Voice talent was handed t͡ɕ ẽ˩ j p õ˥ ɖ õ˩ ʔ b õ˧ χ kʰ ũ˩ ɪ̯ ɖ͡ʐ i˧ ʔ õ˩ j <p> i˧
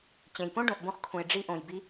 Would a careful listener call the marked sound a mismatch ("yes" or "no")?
yes